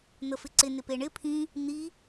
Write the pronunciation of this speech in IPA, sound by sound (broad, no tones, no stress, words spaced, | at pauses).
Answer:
n̪əfɪǀɪ nɪpeɳɪ pʰĩ | n̪i